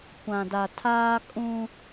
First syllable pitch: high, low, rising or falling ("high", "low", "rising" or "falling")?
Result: low